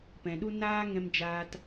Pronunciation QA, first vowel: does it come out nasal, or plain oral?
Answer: nasal